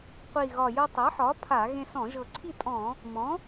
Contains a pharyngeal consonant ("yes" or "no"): yes